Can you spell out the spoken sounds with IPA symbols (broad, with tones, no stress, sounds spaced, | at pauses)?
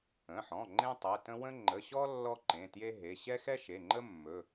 ə̃˩˧˩ ħ ɔ̃˩˧˩ ŋ͡ǃ ẽ˥ tˤ ɛ˩˧˩ t ə̃˥ w ə̃˥ ŋ͡ǃ ə˩˧˩ ɕ ɔ˥ lː ɔ˥ ǃ ẽ˩˧˩ t j e˥ ɦ e˩˧˩ ɕ ɛ˥ x ɛ˥ ʃ e˩˧˩ ŋ͡ǃ ə˥ mː ɵ˩˧˩